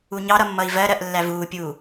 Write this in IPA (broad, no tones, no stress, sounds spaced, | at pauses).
u ɲ ɑ ɾ ʌ mː ʌ i̯ v ɜ ɾ ɜ ʔ lː æ v uː pʲ uː